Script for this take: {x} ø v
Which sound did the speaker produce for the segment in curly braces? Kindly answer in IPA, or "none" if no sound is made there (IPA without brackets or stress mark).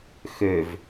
x